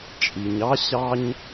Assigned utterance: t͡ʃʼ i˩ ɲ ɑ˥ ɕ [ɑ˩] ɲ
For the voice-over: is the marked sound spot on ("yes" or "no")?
no